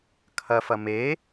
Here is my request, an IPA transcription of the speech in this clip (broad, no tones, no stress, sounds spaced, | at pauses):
kʰ ɐ f ɐ m e